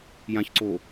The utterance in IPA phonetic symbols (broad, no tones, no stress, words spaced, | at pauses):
jãçǀo